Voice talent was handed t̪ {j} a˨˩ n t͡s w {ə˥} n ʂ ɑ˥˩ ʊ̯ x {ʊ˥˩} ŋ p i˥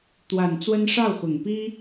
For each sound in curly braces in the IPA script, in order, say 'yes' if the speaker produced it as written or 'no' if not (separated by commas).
no, yes, no